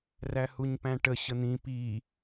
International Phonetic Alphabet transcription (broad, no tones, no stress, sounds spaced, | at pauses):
r æ h u ɲ p æ̃ ʈ ə ɕ ə n̪ ĩ p i